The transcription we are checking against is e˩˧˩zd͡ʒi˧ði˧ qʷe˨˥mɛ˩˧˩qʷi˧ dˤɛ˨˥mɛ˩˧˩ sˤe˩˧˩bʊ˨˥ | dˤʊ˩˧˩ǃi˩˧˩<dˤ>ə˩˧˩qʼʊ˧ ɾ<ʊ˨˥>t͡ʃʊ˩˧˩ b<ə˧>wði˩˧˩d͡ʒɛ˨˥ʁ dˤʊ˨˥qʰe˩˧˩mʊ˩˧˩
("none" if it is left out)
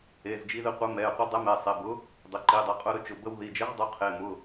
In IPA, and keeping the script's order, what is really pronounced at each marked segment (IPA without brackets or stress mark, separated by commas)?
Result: dˤ, ʊ˧, ə˧